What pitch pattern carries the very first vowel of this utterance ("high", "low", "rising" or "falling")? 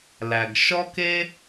low